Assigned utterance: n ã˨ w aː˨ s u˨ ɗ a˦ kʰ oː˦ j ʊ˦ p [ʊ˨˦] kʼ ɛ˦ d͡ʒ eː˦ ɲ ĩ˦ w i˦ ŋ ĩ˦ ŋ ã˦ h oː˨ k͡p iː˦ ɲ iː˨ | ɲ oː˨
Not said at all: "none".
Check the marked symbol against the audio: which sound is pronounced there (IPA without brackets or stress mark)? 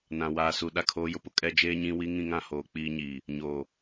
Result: ʊ˦